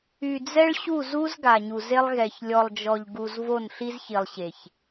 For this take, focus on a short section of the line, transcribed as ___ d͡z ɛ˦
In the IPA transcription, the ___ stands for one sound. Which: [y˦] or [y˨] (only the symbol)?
y˨